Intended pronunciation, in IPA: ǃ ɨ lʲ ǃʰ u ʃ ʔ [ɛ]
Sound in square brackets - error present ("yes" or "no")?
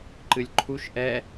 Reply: no